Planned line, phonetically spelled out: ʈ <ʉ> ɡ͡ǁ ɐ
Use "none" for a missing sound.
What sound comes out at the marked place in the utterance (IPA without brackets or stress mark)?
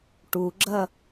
u